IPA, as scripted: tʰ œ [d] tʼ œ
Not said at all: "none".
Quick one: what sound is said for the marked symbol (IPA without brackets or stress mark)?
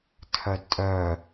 d